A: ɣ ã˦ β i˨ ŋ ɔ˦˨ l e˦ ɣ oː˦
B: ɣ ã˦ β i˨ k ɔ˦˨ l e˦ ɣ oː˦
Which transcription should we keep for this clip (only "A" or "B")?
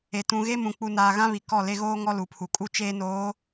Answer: B